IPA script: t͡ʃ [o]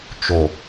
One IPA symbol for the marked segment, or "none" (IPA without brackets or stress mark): o